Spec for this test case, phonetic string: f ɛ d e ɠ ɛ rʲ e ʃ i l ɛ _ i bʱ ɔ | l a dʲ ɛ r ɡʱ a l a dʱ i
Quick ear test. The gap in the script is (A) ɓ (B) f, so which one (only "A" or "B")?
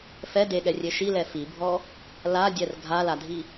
B